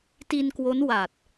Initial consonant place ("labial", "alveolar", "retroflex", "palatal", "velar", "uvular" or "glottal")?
alveolar